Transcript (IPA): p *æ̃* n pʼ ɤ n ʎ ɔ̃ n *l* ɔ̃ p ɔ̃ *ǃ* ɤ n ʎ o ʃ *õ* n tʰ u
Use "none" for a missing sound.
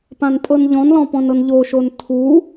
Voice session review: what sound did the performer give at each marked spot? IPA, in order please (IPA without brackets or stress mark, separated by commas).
ã, l, n, o